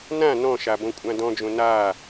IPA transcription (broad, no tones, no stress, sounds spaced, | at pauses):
n ã n ɔ̃ ʃ a b õ kʷʼ ã d ɔ̃ d͡ʒ õ n a